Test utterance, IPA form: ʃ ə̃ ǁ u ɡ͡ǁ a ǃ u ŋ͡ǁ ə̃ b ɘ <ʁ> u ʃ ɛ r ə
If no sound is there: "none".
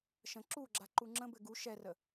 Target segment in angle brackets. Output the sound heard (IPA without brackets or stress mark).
ɡ